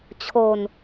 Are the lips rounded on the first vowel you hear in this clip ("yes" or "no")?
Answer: yes